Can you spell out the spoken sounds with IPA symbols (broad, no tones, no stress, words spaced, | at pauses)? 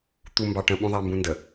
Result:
t̪umbɑʈə̃ ɓũðˤambũndə